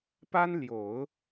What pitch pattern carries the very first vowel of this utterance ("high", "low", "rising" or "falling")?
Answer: high